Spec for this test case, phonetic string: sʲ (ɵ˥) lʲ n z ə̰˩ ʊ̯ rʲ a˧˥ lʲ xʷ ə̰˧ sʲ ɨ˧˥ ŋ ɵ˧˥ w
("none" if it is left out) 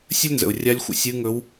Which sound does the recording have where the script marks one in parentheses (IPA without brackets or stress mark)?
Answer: ə˥